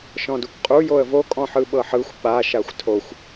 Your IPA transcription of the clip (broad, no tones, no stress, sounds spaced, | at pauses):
ʃ ɔ̃ d u kʷ qʼ u j o ə̯ v o kʼ ɔ̃ ħ ɯ ɓ ɤ ħ ɯ xʷ ɓ a ʃ a xʷ tʰ o xʷ